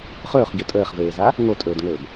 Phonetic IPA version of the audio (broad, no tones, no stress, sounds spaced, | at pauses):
χ ɵː χ ɟ ɵ tʼ əː χ v eː z a | ŋ o tʼ ɵː d ŋ ɵː b